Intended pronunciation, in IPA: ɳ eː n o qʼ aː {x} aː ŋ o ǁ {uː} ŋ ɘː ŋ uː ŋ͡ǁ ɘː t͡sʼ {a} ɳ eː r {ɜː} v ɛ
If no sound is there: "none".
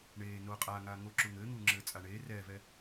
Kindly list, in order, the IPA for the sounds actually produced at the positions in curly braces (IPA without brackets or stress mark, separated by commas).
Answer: ŋ, u, a, ɛː